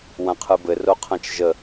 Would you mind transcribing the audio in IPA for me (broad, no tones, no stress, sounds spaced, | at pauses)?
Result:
w ã qʰ ɯ b ɘ r o qʰ ã t͡ʃ ʒ ə